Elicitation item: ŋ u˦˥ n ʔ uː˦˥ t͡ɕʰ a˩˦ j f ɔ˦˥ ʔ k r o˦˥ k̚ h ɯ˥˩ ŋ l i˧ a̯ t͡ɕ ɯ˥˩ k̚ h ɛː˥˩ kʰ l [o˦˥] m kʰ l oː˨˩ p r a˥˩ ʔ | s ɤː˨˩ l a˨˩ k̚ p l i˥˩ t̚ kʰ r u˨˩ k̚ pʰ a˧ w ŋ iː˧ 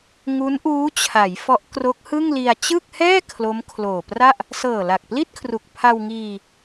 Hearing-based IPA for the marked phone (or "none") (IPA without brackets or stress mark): o˦˥